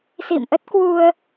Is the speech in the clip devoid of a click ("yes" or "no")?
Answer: yes